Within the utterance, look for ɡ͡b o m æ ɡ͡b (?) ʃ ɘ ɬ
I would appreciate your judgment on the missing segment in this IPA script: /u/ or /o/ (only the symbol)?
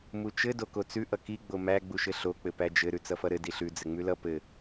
u